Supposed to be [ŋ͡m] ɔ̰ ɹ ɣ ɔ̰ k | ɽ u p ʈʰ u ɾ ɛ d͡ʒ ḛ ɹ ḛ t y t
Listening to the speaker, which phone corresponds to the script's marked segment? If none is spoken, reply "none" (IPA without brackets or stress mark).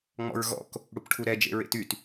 ŋ͡m